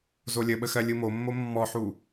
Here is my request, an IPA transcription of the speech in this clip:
zolʲəɓə xɜlʲɯmomːo mːɔħu

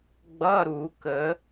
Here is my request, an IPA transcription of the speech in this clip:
ɡ͡bʌ˧˥˧ ɾu˨˩˦kə˨˩˦

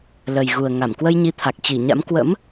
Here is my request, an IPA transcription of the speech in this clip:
lə˨˩jɣu˨˩ə̯ ŋa˧˩m kwə˧jɲi˨˦t̪ʰa˨˩k̚ t͡ɕi˧˩ ɲa̰˧˥m kwə̰˧˥m

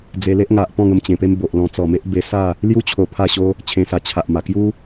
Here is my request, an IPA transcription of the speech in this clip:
d͡ze˧le˦ʔŋa˨ʔpɔ̃˥˧ ŋə˧mt͡ɕẽ˨˩pe˦mbo˨ʔ lɔ̃˧t͡sɔ˨˩me˦ʔ be˧sa˥˧ | lju˦ t͡ɕʰo˧pʰa˥˧ɕo˦ | t͡ɕʰẽ˧sa˧t͡ɕʰa˨ʔma˨˩ kju˦

